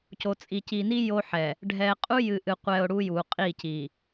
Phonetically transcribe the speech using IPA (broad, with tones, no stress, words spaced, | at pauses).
co˨t͡sʼi˨ci˨ni˦ jo˦ħɛ˨ | ɖʱɛ˨qʼu˦ jɨ˨ʔɨ˨qʷɛ˨ʊ̯ ɽu˦ju˨qʼi˦˨ci˨